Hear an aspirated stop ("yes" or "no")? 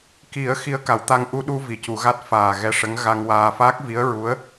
no